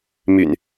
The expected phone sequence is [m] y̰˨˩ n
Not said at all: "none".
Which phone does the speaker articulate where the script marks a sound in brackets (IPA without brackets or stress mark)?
m